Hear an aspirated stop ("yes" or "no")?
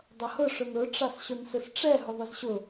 no